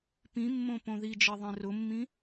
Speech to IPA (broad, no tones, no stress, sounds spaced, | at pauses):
p ĩ mː õ p õ ð i d͡ʒ e ðˤ ẽ r ʊ mː ĩ